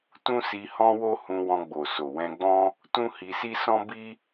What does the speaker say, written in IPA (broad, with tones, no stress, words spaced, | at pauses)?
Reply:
tũ˦si˧hɔ̃˦ wo˦hũ˧wɔ̃˧ɡ͡bo˨ so˨wɛ̃˧ɡ͡bɔ̃˦ | tũ˦hi˧si˦ sɔ̃˦bi˦